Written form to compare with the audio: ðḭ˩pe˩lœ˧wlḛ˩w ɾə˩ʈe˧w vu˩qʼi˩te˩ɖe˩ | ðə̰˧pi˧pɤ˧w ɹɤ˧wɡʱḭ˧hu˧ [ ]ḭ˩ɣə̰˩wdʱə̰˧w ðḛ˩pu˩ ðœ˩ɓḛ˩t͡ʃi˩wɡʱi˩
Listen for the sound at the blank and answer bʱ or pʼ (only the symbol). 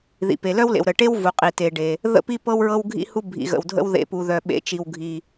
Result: bʱ